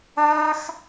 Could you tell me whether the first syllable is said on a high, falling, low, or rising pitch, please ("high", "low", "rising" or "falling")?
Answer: high